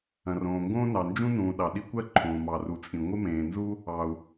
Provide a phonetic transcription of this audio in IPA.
ɐ̃˩ r õː˩ ŋ ɡ õː˥ n ɑ˩ n d͡ʒ ũ˥ n ũː˩ ɗ ɑ˩ ɗ i˥ kʷ ɜ˥ ǃʰ õː˩ m ɑ˩ r u˩ t͡sʼ ĩ˩ ŋʷ ɪ˥ m ẽː˩ n z u˥ | ɑ˩ u̯

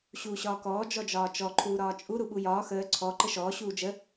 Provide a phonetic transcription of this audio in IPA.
ɕ uː ɕ ɒː k ɔː d͡ʒ ɔ d͡ʒ ɒː t͡ʃ ɔ ǃʰ uː ɾ ɒː t͡ʃʼ u ɾ u ɓ u j ɒː x əː ǀʰ ɔ ǃ ə ʃ ɔː ɕ uː d͡ʒ ə

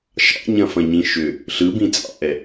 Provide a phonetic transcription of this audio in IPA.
ʃ ɑ̰ ɲ ɐ̃ f ɐ̃ ɲ ĩ ʃ ʏ | ɬ ɯ b ĩ t͡sʼ ɑ̰ ʔ ɛ

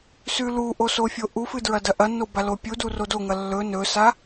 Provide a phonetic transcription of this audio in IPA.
s ʉ l u ʔ o s o fʲ o ʔ u f ɨ d ɹ ɐ d ɐ ʔ ɐ nː o b a l o pʲ u d u r o d o ŋ ɐ lː ɵ n ɵ s a

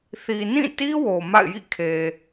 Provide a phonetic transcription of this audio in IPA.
θ i˨ n ĩ˦˨ t i˦ w o˨ m a̰˦˨ ɪ̯ j ḭ˦˨ kʰ e˨

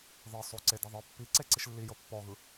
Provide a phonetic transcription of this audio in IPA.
ð ɤ sˤ o ǀ e d i ðˤ ɯ pː i ǀ e ǀ i ʃ lː i j ɤ pː ɔ ɣ ɯ

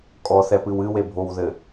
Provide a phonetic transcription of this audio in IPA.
kʼ ɔ θ ɛ p ɨ w ɨ w e bʱ o w ð ɘ

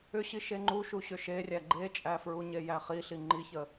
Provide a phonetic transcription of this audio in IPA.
ʏ ɕ i ʃ e ŋ͡ǃ u ʃ u ɕ ʏ ʃ e rʲ æ ɡ͡ǃ e t͡ʃʼ æ f ɹ u ɲ e j æ χ i ɬ i ŋ͡ǃ i ç ə

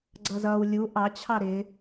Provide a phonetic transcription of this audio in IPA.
ɡ͡ǀ ʌ z ʌ w lʲ u ʔ ɑ t͡ɕʰ ɑ ɾ ɪ

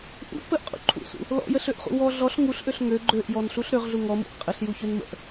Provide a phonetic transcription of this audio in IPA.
ʔ ṵ p ə ʔ qʼ ṵ ǃʰ ṵ s ṵ | l ɔ̰ j ə ɬ ø ʔ χ ṵ w ɔ ɮ ɔ ɬ ŋ u ɬ ʔ ø ɬ ŋ ø ɡ͡ǃ ø ʔ j ɔ n ɬ u ɬ ɾ ø ʁ ɮ u ŋ ɔ m ṵ ʔ qʼ ə ɬ j u ç ø n m ə̰ ʔ

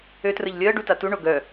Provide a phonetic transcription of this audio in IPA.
ø t r ə ʎ lʲ əː ɖ u t a t u ɳ o ɡ œ

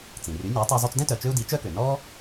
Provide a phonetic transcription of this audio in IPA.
t͡s ĩ˩ r y˩˥ nʲ a˩˥ tˤ ø˧ zˤ u˧ t͡s d ɛ̃˥ t œ˩ t͡ʃ ø˥ u̯ d i˩˥ t͡ʃ œ˥ k ø˩ n ɔ˥

